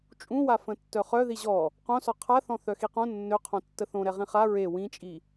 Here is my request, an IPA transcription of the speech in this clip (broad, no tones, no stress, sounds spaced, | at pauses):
t͡ʃʼ ũ w a f ə̃ tː œ χ œ ð i ʑ ɔ | q õ s ɔ qʰ a θ ɔ̃ θ œ x i q õ nː ø qʰ õ tː ə θ õ ɾ ɛ ʁ ĩ χ a ɹ e w ĩ t͡ʃʼ i